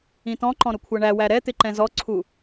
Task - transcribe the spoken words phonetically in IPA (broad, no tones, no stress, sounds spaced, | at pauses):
ĩ t ɔ̃ ǃ ɔ̃ ɾ ʊ kʷʰ ʌ ɳ æ w æ ɾ ɛ t̪ ɪ ǃ ɛ̃ z ɔ ǀʰ u